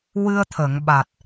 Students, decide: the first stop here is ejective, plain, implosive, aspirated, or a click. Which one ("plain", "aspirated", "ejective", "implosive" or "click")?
aspirated